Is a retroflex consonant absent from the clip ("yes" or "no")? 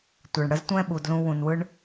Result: no